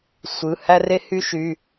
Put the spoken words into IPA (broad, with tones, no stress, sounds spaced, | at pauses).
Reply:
sʷ ɯ˩˧˩ h æ˦ r e˦ h y˦ ʃ y˩˧˩